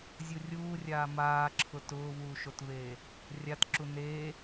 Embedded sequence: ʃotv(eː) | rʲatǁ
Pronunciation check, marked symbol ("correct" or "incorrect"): correct